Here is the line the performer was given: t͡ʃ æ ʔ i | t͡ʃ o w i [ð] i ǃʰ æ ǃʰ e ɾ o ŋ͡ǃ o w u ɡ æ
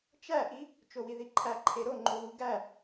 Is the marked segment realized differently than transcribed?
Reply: no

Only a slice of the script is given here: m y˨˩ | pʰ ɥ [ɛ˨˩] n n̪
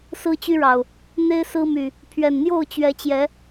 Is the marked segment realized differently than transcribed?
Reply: no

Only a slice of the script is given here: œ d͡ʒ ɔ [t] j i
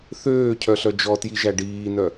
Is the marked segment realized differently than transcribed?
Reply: no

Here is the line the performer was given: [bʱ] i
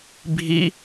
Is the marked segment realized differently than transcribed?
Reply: no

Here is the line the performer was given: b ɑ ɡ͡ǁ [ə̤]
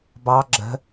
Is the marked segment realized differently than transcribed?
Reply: no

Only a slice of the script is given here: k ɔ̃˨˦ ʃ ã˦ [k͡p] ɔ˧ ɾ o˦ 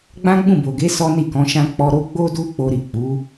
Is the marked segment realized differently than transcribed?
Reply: no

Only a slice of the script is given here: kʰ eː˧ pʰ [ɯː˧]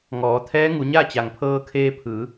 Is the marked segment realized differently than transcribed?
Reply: yes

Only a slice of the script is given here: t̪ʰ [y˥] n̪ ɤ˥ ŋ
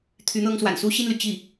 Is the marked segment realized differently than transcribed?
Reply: yes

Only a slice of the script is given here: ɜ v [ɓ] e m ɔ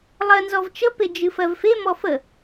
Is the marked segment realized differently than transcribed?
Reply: yes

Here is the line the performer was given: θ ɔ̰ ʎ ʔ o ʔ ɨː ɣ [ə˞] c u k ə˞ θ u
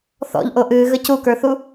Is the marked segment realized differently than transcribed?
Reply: yes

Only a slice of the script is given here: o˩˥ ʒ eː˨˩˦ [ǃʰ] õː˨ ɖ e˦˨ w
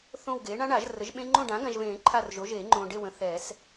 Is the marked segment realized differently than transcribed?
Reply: yes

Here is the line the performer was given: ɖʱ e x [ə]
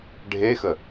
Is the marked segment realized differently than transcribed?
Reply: no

